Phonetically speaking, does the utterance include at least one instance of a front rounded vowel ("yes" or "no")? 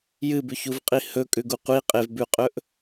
no